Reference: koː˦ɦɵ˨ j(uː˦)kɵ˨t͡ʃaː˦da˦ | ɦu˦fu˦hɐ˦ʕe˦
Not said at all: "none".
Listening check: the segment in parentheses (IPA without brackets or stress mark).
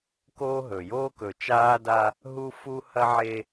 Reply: oː˦